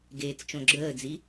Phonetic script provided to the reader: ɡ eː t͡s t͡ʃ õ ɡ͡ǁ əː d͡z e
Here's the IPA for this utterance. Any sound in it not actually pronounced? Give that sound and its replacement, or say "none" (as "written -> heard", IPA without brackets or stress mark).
e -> i